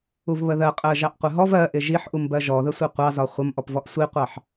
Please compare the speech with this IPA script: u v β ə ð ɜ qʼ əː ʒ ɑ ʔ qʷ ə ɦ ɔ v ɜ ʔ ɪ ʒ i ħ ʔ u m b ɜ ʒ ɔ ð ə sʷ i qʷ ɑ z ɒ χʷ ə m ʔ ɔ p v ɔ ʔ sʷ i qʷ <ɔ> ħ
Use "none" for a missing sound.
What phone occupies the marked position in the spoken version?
ɑ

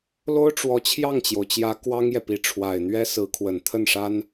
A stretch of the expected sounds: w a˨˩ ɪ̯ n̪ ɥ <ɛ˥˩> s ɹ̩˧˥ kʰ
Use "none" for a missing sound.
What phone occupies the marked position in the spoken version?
ɛ˥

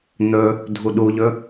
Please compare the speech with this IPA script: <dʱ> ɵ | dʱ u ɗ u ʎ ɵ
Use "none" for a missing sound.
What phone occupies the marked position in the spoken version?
n̪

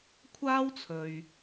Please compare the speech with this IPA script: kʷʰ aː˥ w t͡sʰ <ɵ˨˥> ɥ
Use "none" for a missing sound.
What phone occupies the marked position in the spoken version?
ɵ˨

